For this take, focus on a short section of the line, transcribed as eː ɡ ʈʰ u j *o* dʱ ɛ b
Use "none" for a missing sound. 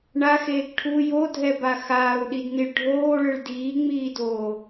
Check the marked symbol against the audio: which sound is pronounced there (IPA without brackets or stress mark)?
o